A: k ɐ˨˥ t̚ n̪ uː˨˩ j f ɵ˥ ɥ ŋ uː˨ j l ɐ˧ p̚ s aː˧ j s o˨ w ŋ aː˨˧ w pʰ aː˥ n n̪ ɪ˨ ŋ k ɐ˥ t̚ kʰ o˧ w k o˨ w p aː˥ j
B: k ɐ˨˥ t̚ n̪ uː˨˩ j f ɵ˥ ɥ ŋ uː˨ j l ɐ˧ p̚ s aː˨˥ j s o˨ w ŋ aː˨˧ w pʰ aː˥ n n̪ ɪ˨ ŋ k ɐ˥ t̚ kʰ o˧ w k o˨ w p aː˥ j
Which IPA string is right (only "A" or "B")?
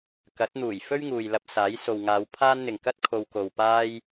B